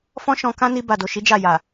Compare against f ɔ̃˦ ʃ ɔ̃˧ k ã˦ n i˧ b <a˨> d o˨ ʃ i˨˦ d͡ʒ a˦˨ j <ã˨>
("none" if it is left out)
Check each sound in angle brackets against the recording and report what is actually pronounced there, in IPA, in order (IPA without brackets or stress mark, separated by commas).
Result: a˨, a˨